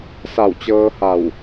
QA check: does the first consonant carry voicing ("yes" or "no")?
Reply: no